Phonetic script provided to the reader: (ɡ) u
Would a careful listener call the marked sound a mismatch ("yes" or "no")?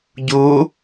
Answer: yes